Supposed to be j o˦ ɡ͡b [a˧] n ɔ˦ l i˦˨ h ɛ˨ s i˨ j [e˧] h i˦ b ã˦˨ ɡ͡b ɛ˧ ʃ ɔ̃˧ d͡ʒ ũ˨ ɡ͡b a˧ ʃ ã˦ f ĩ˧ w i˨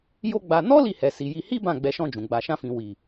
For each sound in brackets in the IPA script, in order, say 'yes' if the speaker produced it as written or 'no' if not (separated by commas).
yes, no